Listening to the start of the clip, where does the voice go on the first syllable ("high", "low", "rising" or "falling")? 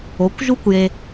rising